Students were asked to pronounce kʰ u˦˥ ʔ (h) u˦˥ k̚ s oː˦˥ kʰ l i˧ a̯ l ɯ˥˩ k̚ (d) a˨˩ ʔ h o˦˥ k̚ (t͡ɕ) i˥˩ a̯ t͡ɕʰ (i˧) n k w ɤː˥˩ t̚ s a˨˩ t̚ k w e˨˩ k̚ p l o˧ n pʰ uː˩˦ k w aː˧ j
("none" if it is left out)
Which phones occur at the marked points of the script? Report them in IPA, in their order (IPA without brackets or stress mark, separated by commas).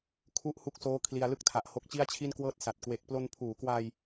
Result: h, tʰ, t͡ɕ, i˥˩